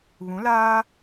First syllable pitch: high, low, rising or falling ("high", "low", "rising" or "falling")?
rising